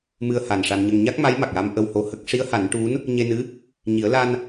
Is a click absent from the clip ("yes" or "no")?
yes